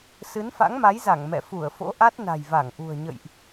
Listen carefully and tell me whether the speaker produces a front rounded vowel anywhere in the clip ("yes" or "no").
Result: no